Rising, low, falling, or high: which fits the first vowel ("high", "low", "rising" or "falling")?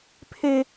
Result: high